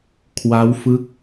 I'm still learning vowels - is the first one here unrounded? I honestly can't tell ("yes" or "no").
yes